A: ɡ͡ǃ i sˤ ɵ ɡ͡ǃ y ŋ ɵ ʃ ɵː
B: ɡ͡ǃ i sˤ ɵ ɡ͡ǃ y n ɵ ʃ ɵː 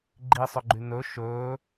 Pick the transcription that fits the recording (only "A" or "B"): B